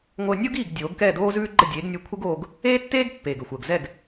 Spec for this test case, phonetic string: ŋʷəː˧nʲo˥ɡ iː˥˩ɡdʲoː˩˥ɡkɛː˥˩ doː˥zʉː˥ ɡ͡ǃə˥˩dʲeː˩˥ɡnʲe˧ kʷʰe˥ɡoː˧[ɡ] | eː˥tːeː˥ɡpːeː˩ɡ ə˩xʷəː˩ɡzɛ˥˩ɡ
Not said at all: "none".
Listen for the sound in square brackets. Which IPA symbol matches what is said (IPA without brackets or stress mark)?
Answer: ɡ